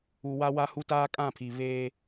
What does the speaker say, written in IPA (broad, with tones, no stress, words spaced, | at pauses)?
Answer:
u˨wa˦wa˦ hu˦taː˦kʼã˦˨pʰi˨ βeː˦